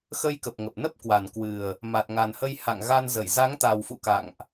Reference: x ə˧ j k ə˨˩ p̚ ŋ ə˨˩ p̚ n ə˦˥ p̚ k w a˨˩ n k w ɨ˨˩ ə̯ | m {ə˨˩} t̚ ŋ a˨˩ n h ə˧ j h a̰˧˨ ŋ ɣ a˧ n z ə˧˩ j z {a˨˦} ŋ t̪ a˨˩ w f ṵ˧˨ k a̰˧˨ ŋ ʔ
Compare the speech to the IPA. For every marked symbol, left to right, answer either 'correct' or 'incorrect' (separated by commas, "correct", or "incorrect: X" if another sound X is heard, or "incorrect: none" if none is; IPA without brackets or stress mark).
incorrect: a˨˩, correct